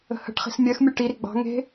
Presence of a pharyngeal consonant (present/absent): absent